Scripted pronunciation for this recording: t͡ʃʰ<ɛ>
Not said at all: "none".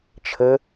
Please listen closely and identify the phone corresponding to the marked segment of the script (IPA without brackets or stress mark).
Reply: ə